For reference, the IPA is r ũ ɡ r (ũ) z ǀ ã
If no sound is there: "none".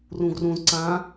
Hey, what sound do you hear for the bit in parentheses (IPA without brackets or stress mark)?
ũ